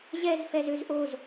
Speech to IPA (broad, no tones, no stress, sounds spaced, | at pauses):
ʑ ɛ z f ɛ z ø z ʔ o z